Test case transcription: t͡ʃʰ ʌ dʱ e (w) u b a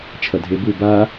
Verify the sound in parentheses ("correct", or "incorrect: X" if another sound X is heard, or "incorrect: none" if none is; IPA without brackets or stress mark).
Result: incorrect: b